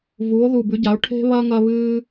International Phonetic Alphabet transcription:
vuː˩˧o̯ðu˨˩bʉ˩˧ɟa˩˧o̯ ʈʰe̤˦βɐ˦ ŋɐ˦ βɨː˦

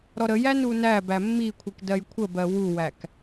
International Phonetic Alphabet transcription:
ɾɔɾəjæ nunæbæ mːikʷʰik dɜjkʷʰəbɜ wuwæk

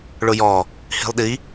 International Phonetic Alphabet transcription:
ɭʊjɔ | hi̤lˠɗi

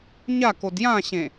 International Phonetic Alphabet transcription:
ɲakod jãɕẽ

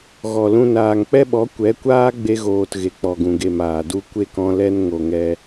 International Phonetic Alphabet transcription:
ɣɔ˨lũ˧ naː˨ŋk͡pɛ˦ɓɔ˨˦ kʷɛ˨˦kʷaː˦ ɡ͡be˧ɣoː˨t ɣe˨k͡pɔ˨ɡũ˨ɡe˨m aː˨du˧ kʷe˦kɔ̃˧ lɛ˧n ŋo˨ŋɛ˧

